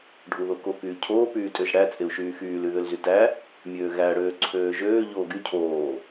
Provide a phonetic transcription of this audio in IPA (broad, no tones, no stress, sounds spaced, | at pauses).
ɖʱ u ð o k o k yː cʰ oː p yː tʼ ø ʒ ɽ æ t͡sʼ e u̯ ʃ yː x yː l y ð ø l z y t æ | mʲ øː ɣ æ ɽ øː ǀʰ øː ʒ øː ʎ oː ɡ y cʰ oː